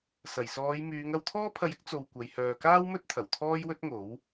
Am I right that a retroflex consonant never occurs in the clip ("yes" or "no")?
yes